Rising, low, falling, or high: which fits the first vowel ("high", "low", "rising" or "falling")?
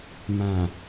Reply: low